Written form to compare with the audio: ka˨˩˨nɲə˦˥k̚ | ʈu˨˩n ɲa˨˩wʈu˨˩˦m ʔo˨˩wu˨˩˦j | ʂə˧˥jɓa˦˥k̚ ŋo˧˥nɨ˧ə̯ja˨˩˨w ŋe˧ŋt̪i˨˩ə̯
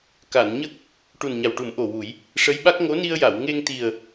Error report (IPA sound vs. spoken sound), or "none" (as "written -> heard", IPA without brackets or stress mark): ɨ˧ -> i˧